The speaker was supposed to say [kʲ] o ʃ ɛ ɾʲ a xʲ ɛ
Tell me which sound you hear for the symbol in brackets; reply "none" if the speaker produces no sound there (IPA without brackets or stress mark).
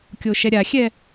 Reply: kʲ